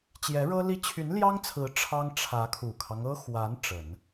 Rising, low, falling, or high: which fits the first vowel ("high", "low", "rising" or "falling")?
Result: rising